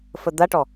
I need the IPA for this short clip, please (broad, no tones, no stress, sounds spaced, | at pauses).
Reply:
f ə d̪ a ʈ ɔ